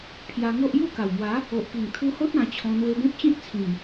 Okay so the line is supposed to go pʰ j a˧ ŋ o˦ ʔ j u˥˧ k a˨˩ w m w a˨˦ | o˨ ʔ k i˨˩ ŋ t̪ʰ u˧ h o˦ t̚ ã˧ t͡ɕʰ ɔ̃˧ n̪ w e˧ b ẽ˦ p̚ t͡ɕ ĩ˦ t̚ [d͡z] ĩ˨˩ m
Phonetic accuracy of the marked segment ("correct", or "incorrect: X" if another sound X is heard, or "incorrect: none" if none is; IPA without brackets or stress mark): incorrect: t͡sʰ